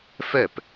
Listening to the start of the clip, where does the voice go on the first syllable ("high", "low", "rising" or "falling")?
falling